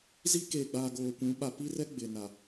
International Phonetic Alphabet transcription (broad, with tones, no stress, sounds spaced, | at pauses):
z i˦ k eː˨ ɡ͡b aː˨ ɡ oː˨ kʷ ũ˨˦ ɓ a˨ p i˦ r ɛ˦ ɡ͡b ɪ˨ n a˨